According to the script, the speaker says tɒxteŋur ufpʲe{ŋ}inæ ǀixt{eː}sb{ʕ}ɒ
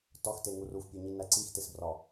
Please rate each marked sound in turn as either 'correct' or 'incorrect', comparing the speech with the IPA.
incorrect, incorrect, incorrect

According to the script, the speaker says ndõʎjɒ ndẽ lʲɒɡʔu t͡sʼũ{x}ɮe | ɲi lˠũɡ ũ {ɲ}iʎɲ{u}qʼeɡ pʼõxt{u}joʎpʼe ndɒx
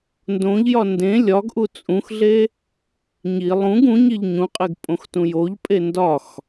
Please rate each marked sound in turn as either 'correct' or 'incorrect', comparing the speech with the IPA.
correct, correct, incorrect, incorrect

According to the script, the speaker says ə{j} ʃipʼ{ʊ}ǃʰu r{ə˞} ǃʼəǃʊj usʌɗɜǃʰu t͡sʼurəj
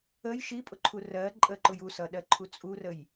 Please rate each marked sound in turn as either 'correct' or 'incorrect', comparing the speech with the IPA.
correct, correct, incorrect

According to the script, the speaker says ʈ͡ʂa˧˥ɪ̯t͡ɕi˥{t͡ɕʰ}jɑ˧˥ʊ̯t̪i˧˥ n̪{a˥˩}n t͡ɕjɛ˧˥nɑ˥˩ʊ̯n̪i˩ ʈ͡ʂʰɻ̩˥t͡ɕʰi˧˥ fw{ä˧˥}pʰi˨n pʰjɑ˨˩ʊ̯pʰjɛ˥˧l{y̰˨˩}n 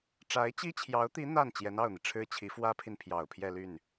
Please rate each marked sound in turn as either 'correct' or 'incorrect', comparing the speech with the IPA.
correct, correct, incorrect, incorrect

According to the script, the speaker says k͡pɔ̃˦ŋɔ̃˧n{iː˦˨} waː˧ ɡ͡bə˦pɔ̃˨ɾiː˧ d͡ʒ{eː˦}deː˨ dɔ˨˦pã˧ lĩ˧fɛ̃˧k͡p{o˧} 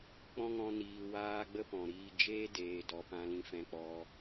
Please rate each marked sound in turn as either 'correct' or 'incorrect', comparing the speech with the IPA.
incorrect, correct, incorrect

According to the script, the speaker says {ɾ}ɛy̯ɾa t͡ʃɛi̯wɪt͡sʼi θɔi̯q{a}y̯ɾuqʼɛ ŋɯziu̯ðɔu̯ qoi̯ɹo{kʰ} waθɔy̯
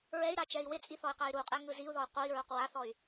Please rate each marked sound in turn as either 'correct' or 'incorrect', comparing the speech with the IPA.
incorrect, correct, incorrect

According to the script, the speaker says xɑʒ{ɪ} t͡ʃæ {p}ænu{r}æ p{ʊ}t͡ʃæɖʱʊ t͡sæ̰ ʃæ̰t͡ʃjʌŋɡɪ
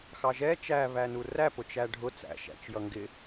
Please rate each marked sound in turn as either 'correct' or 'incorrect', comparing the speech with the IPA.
incorrect, incorrect, correct, correct

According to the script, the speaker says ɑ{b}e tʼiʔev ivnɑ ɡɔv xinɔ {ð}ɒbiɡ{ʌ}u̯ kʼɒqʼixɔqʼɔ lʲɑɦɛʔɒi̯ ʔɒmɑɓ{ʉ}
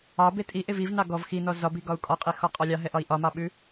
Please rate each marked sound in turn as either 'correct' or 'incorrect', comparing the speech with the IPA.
correct, incorrect, incorrect, correct

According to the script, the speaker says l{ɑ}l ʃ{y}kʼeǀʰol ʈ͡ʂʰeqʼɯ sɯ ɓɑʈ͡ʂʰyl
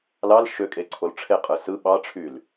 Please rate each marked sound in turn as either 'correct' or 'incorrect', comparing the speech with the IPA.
correct, incorrect

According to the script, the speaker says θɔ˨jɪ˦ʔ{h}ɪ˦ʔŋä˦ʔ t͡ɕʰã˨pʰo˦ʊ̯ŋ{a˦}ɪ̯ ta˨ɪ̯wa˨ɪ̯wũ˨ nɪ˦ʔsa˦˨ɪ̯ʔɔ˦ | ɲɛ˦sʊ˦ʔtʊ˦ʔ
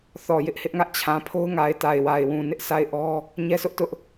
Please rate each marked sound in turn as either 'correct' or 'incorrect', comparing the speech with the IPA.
correct, incorrect

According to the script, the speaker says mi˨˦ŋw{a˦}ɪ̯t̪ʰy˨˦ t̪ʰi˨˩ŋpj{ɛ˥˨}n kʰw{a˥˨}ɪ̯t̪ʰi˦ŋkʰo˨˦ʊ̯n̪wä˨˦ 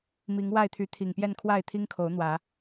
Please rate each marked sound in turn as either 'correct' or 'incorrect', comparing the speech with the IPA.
incorrect, correct, correct

